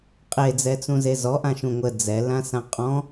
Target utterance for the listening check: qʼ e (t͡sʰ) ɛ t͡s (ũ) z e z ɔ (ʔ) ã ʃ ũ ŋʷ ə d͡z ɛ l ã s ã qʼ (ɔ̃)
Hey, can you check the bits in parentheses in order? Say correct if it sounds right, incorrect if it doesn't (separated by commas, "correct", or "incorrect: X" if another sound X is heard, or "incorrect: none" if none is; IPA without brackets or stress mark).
incorrect: d͡z, correct, correct, correct